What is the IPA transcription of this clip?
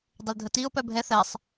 dˤ ə l dʱ ə t i ʊ̯ p œ bʱ ɛ θ ɛ sˤ

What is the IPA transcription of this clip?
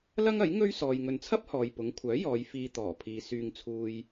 l ɐ˥ ŋ ɐ˨˥ j ŋ ɵ˥ ɥ s ɔː˨ j ŋ ɵ˨ n t͡sʰ ɐ˥ p̚ h ɔː˨ j p ʊ˨˥ ŋ kʷʰ œː˨˥ j ɔː˨˧ j f iː˧ t̪ ɔː˨˩ pʰ iː˨ s yː˨ ŋ t͡sʰ uː˨ j

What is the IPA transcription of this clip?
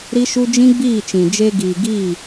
ɾ i˦ ʃ u˦ d͡ʒ ĩ˦ ɡ͡b iː˦˨ t͡ʃ ĩ˨ d͡ʒ e˧ ɡ iː˨ ɡ iː˦˨

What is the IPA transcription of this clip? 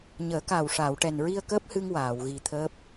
ɲ əː˨˩˦ k aː˨˩ w ʂ aː˨˩˨ w ʈ ɛ˨˩ n ɹ i˧ ə̯ k əː˦˥ p̚ h ɨ˧ ŋ w aː˨˩˨ w ɣ i˨˩ t̪ʰ əː˦˥ p̚

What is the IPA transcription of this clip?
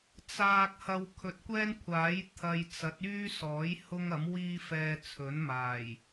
t͡s aː˨ k̚ h ɐ˨ w kʰ ɵ˨ t̚ kʷ ɛː˥ n kʷʰ aː˨˥ j t̪ʰ ɐ˧ j t͡s ɐ˨˥ t̚ yː˥ s ɔː˨˥ j h ʊ˥ ŋ ɐ˨˥ m w iː˥ f ɛː˧ t͡sʰ ɵ˨˥ n m aː˨˩ j

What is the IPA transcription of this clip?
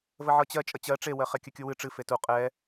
v ə ʕ ɤ t͡ɕ ɜ t͡ʃʼ ə t͡ɕ ɜ ʈ͡ʂ e w ɜ χ ɛ kʲ ɘ kʲ u w ɨ ʈ͡ʂ ɨ f e t u qʼ ɛ

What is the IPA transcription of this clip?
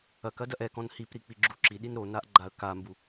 ɐ k ɐ d ɐ ʔ ɛ k ɔ̃ n h i p ɾ i k͡p i ɡ͡ǁ u ǁ i ɗ i n ɾ o n a ʔ ɡ͡ǃ a ə̯ k a m b u

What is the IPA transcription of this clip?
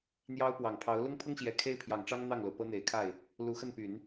n̪ j ɑ˥ ʊ̯ p w ɑ˨˩ ŋ pʰ ɑ˧˥ ʊ̯ l ʊ˥ ŋ pʰ ʊ˥ ŋ ɕ j ɛ˨˩ kʰ e˥ ɪ̯ pʰ j ɑ˨˩ ŋ ʈ͡ʂ ɑ˥ ŋ n̪ ɑ˥˩ ŋ l o˩ ʊ̯ p ɤ˥ n̪ e˨˩ ɪ̯ kʰ a˥˩ ɪ̯ | l u˧˥ x ə˥˩ n p y˨˩˦ n

